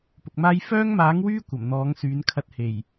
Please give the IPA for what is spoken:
pʊ˨k̚maː˥j fœː˥ŋmaː˨˥ŋwyː˥ kʷɐ˨˩mn̪ɔː˨˥ŋ syː˨˥nkʰɐ˥t̚he˨˩j

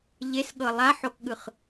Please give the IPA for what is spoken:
ʎesɠɤ lˠaħokɠɯχ

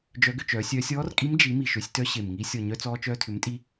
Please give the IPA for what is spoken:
d͡ʒœ˧˥ɡʏ˧t͡ʃœː˩˥sʲœː˧˥sʲ ɔː˧˥rkʼi˧˥m d͡ʒi˩˥ mi˨˩ʃø˩˥sʲtœ˧˥ ɕe˨˩mŋi˧˥ sʲɔ˨˩ɲœ˧ t͡sɔː˧ t͡ʃœː˧tʰʏ˩˥mtʼi˧

